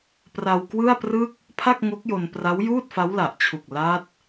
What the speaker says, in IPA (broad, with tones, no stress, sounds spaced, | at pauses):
p r a˧ w k w ɯ˥˩ a̯ p r ɯ˥˩ k̚ | pʰ a˥˩ k̚ ŋ o˦˥ k̚ j o˧ n p r a˦˥ w j uː˥˩ t̚ f a˦˥ w l a˨˩ ʔ t͡ɕʰ u˨˩ k̚ l a˦˥ t̚